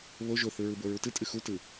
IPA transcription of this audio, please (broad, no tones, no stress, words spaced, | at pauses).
βo ʒoθɯɹɯbo ɹutɨ tʼɨxutɯ